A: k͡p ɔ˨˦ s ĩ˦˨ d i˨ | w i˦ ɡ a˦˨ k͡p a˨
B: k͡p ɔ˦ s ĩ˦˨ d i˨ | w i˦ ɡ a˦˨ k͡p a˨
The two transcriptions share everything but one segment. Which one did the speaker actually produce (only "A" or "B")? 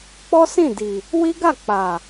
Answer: B